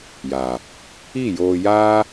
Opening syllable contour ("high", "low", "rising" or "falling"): low